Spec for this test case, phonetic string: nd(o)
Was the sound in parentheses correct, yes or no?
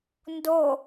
yes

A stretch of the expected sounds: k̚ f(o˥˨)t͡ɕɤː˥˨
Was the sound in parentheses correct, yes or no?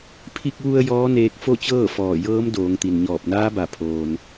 yes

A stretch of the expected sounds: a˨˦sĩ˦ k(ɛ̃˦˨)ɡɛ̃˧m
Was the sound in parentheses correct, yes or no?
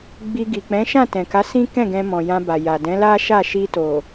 yes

